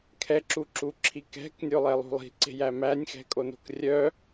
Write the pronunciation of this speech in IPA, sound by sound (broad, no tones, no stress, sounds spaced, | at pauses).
kʰ ɛ ǁ u ǁ u ǁʰ i k ɛ̤ k nʲ o lˠ ɛ lˠ ṳ lˠ i̤ ǀ e̤ j æ m æ nʲ x ɛ̤ kʼ o n o̤ k rʲ œ